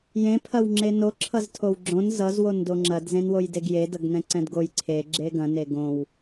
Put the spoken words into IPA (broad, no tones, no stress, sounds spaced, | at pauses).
j ẽ pʰ ɐ w ŋ͡ǁ e n o ǁʰ ʌ z tʰ o w ɡ͡ǁ õ n z ʌ z w o n d o ŋ͡ǁ ɐ d z ẽ n w o j d e ɡ j e d ʌ ɡ n ɛ̃ ǀ ɛ̃ d ɡ o j ǀʰ e ɡ͡ǁ e ɡ ɐ̃ n e ɡ õ w